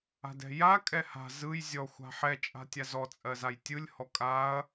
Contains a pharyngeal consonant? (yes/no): yes